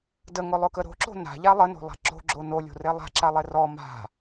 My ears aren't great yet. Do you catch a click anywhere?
yes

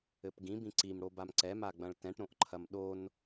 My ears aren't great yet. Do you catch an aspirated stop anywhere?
yes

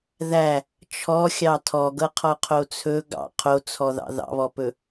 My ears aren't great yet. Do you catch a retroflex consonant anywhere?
no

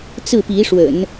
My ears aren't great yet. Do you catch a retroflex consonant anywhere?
yes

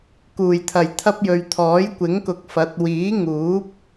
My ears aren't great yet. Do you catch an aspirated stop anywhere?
yes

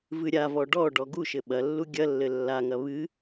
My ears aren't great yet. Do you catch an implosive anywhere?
yes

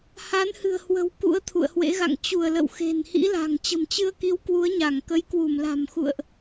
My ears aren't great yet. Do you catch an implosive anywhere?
no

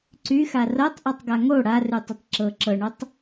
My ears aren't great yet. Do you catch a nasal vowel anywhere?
no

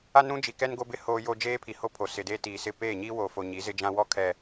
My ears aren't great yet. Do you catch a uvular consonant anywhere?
no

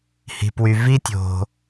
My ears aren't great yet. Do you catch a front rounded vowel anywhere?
yes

